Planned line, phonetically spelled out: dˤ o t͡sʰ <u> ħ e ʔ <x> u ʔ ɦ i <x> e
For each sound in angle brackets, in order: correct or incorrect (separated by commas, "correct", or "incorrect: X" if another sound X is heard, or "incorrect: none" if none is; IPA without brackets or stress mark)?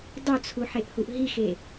correct, incorrect: h, correct